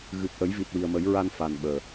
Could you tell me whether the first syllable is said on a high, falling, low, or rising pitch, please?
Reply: low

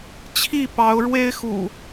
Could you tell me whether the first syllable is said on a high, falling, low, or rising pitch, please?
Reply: falling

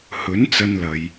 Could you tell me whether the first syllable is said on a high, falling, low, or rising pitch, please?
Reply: rising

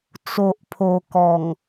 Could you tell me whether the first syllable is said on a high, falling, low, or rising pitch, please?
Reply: low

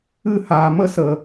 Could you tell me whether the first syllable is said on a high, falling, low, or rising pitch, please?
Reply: falling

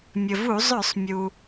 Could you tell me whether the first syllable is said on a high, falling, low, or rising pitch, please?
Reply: low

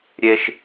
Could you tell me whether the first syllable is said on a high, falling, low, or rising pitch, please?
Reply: high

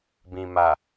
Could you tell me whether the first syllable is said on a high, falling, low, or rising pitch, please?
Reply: low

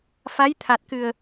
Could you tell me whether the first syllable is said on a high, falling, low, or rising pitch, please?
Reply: rising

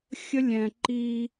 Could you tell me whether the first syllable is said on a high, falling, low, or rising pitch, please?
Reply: high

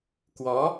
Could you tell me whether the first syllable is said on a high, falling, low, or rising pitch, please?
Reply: rising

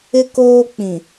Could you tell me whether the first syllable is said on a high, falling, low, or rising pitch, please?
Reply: high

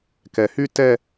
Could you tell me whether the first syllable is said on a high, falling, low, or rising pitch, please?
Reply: low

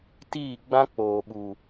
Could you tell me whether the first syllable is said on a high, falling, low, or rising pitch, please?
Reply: falling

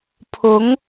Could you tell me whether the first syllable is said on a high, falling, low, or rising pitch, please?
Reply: rising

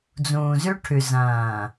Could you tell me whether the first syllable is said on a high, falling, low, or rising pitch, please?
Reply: low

